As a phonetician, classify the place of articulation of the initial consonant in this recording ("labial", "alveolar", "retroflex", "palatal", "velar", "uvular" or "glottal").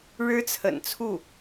retroflex